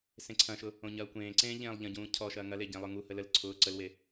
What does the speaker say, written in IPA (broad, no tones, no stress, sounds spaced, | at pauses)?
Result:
s ẽ ǀʰ ɐ̃ ʃ ʊ | õ ɲ ɐː kʷ ẽː ǀ ẽː ʎ ẽː lˠ ʎ ɐ̃ ɟ ũː cʰ ɔ ʃ ɐː ŋ ɐ l e ɟ ẽ lˠ ʊ ŋ u h ə l ə l ǀʰ ʊː ǀ ə l w e